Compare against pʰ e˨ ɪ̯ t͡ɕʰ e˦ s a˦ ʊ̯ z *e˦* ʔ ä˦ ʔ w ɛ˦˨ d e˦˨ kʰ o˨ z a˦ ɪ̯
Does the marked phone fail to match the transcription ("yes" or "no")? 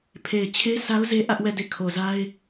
no